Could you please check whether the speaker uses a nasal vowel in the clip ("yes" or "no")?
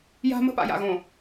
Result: yes